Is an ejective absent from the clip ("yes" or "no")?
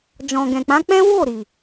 yes